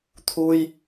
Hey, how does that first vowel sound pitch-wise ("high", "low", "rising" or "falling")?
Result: high